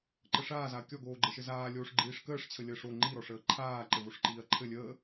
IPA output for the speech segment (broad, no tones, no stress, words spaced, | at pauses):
ǃəʂaːzaɐ̯ kʲɔɡoːɡ͡ǃɘʃɘ zaː lʲoːʂɡ͡ǃiːʂkəːʂt͡ɕʰə lʲəːʂo ŋ͡ǃiɾɔʂəː ǃʰaː ǃɘvoʂǃiːɐ̯ǃʰɘ lʲəː